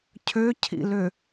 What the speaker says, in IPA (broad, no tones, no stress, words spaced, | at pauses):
cʰøcʰḭlø